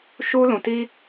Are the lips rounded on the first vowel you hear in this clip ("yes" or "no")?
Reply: yes